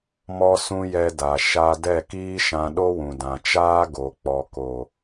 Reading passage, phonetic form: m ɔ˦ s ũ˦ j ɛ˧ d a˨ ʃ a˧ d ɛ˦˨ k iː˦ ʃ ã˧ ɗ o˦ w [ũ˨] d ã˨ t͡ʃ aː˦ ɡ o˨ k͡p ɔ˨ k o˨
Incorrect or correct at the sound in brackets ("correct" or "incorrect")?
correct